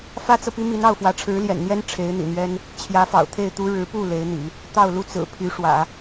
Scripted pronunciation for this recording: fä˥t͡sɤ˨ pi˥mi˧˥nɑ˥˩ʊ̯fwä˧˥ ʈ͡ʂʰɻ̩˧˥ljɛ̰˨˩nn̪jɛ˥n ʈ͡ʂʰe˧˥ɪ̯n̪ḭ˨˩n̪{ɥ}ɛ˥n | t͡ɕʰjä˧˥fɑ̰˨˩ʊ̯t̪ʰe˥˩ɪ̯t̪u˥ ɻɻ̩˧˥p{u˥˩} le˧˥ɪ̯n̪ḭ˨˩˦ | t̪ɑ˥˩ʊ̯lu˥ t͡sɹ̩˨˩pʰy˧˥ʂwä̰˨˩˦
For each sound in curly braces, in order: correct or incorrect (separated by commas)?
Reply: correct, correct